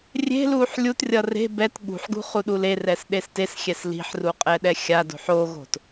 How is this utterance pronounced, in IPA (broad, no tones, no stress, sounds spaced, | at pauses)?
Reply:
rʲ e̤ l uː ħ lʲ u t rʲ ʌ r e̤ b ɛ t ɠ ṳ ħ ɡ ṳ χ u ɗ u l e r ɛ s ɗ e s t e s xʲ ɛ s l i̤ ħ r u qʼ ɛ ɗ ɛ xʲ a d o̤ ħ o ɣ o̤ t